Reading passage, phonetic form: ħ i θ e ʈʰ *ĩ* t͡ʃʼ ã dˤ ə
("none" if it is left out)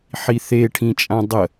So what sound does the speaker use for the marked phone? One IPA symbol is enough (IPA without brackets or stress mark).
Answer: ĩ